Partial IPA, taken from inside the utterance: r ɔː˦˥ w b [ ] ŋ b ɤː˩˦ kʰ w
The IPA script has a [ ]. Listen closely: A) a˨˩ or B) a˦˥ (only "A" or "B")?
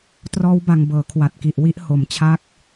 A